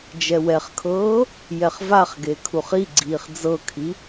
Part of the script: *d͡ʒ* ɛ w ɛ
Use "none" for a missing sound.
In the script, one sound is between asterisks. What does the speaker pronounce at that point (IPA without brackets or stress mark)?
d͡ʒ